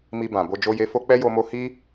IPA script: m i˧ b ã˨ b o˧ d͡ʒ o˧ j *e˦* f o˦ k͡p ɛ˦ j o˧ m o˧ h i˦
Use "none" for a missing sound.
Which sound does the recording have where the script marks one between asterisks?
e˧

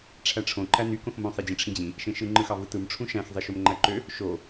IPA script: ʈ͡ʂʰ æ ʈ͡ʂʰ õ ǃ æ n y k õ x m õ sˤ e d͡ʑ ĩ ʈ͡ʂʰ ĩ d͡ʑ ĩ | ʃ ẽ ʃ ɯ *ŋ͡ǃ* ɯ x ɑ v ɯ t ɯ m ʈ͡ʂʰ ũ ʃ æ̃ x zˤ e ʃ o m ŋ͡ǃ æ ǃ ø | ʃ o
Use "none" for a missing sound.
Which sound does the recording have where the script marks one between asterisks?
ŋ͡ǃ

